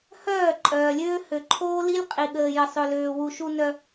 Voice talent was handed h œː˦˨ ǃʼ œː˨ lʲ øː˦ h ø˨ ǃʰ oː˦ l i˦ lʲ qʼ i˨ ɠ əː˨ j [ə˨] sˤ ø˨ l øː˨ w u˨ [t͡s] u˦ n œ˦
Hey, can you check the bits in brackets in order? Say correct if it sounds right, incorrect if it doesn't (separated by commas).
correct, incorrect